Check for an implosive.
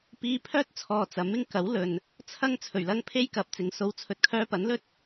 absent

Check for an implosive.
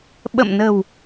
present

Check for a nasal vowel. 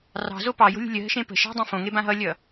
present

